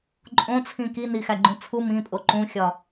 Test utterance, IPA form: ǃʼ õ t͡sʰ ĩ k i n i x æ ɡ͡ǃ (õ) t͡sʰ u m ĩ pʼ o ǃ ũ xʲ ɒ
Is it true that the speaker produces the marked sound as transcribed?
no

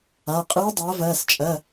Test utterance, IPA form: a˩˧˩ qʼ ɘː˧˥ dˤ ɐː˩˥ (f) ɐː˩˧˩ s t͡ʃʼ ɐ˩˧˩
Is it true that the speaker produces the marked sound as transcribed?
no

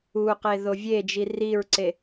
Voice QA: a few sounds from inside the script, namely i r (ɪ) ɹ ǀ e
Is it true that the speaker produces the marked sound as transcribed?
no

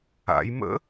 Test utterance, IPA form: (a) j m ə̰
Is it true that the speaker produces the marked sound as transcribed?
no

